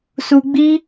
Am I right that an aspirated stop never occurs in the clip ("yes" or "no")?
yes